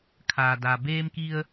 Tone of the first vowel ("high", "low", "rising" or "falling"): low